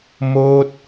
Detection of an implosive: absent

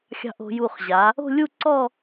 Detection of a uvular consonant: present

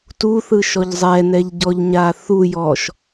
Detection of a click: absent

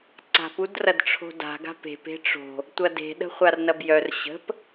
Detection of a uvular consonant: present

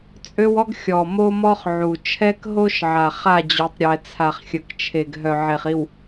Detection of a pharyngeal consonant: present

